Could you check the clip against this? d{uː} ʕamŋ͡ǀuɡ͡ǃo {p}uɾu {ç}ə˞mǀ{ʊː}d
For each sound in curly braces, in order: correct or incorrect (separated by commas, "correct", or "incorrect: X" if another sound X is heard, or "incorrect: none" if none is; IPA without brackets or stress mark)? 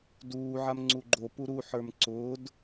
correct, correct, incorrect: ħ, correct